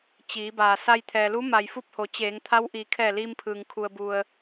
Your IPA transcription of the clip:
t͡ɕiː˩˧baː˩ sa˧jt̪ʰɛː˩lu˧˥ma˩j fu˥˨p̚ho˩˧ t͡ɕeː˩˧ŋt̪ʰa˧˥w ʔiː˩˧kʰɛː˧˩liː˧m pʰɯː˩ŋkʰu˩ə̯bu˩ə̯

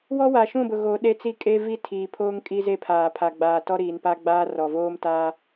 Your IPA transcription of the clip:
wɔ˦wa˨ʃũ˦˨bʊ˨ ɣo˨˦ɗe˦t͡si˦ kʼe˦vi˦tʰiː˨ pʰoː˦ŋ kʼi˦ze˦˨pʰaː˨ pʰa˨ɡ͡baː˨tɔ˦ɾiː˨n pa˦ɡ͡baː˦rɔ˨ voː˦mtaː˦

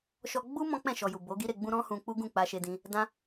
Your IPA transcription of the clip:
ʃɔ˧ ɡ͡bu˦ mɔ̃˦k͡pɛ̃˦˨ ʃɔ˨ju˨ bo˨˦ɡi˦ɾe˧ɡ͡bũ˦ ɾɔ̃˦hũ˧k͡pu˦ ɡũ˦˨k͡pa˧ʃe˧dĩ˧ | dã˦

